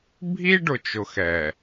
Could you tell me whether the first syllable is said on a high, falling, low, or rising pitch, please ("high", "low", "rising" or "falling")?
high